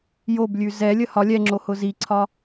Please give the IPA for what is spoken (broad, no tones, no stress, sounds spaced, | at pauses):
j o b lʲ ʉ z ɛ lʲ ə h ɒ lʲ ɛ ŋ͡ǁ o h ʊ z i ǀʰ ɒ